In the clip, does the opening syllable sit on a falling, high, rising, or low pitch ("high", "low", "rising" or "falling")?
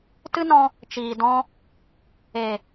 high